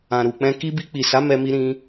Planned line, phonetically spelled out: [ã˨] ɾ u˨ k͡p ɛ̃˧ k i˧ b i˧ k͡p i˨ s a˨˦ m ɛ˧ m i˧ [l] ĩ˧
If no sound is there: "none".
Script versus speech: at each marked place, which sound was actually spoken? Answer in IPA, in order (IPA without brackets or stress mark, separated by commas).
ã˨, ɾ